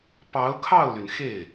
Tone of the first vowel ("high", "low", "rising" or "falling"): rising